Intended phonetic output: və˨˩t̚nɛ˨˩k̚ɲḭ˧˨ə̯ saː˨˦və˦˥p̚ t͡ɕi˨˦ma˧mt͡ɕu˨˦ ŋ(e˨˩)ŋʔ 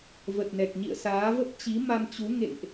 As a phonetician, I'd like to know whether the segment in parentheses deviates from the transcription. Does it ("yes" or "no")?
yes